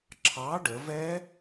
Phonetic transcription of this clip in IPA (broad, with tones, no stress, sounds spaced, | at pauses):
ǁʰ ɑ˨˥ ɖ ə˩˧ v ɛ˦˥